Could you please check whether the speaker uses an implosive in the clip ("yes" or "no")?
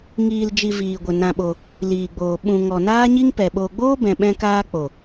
yes